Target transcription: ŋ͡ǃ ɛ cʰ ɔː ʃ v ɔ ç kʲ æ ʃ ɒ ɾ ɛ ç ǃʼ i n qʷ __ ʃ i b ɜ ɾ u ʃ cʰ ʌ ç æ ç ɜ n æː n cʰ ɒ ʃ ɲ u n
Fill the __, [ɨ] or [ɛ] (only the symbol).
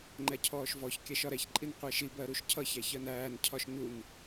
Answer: ɛ